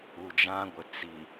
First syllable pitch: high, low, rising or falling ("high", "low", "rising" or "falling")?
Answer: low